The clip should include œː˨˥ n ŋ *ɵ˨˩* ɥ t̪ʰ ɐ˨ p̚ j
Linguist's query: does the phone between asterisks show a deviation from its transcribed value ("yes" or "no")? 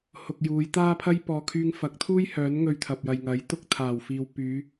yes